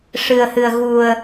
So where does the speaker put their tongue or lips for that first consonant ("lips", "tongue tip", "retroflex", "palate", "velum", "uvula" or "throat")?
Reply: retroflex